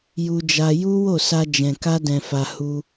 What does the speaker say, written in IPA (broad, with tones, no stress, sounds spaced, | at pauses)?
j u˧ d͡ʒ a˧ j u˦ w o˦˨ s a˧ d͡ʒ ɛ̃˨ k a˧ d ɛ̃˨ f a˨ h u˧